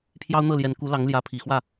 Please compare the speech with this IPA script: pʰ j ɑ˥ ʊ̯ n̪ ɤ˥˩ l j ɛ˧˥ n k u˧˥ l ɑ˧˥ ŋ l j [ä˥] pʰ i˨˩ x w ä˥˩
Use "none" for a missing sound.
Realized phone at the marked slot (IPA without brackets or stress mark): ä˧˥